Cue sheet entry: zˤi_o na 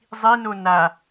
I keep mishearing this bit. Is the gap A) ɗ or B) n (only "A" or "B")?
B